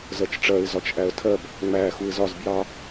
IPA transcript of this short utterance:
z ɜ t͡ʃ ʈ͡ʂ ɜ ɪ̯ z ɒ t͡ʃ ʔ æ ə̯ tʰ ɜ b | ŋ͡m æ x u ɪ̯ z ɒ z b j ɑ

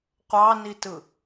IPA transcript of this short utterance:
qʷ ɑ n i t ɯ

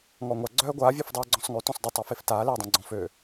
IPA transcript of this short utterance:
ŋ ɔ ŋʷ a ɡ͡ǀ œː ɡʷ aː vʲ ø f dˤ eː ɡ͡ǀ ɔ̃ sˤ ŋ ø t ɔ̃ sˤ d ə tˤ a f e f t aː l eː dˤ ã ɡ͡ǀ ɔ̃ f ø

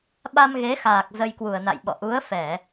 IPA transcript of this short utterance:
ɓ a˧ m ɣ e˨˦ x aː˨˩ k̚ z ə˧ j k w u˨˩ ə̯ n a̰˧˨ j ɓ ɔ̰˧˨ ʔ u˨˦ ə̯ f ɛ˧˩˨

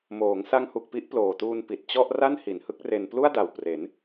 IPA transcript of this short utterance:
m oː˩˦ ŋ s a˦˥ ŋ h u˨˩ k̚ p i˦˥ ʔ p l oː˨˩ t uː˧ n p i˨˩ t̚ t͡ɕ ɔ˥˩ ʔ r a˥˩ n h i˩˦ n h ɯ˦˥ k̚ r e˧ n p l u˥˩ a̯ d a˨˩ w p r e˩˦ n

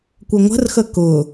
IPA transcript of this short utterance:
kʷ ə ŋʷ ə̤ r x ə k ʊ

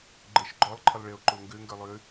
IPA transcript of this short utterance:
ɡ͡ǃ ə ʃ ɡ͡ǃ ɔ lˠ ǃʰ ə lˠ ɭ e o̯ ǃ o ŋ ɡ ø ŋ ɡ ə˞ lˠ ø

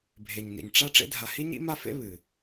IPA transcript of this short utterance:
bʱ e˩ ɲ n ḭ˩ ɲ ʈ͡ʂ a˦ ʈ͡ʂ ḛ˦ dʱ a˨ h i˥ ɲ ḭ˥ m a˥ f ḛ˥ β ɨ˩

